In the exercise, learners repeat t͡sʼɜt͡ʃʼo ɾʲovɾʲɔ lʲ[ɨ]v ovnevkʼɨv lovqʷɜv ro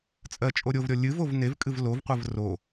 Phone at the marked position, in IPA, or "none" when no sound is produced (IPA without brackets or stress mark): ɨ